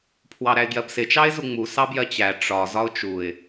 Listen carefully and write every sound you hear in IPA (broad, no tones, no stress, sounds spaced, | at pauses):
pʰ w ɑ ɾ æ ɪ̯ ɡ j ɜ b s ɪ t͡ʃ ɑ ɪ̯ z u ŋ͡m u s ɑ b j ɜ t͡ɕ æ ʈ͡ʂ ɒ z ɒ ʊ̯ t͡ʃ u ɪ̯